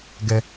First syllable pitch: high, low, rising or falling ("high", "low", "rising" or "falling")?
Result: high